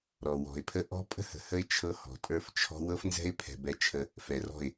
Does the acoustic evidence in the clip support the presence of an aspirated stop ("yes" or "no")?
yes